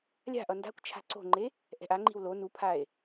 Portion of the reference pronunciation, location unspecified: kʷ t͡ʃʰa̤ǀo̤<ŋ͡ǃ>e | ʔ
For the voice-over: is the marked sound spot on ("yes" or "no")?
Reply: yes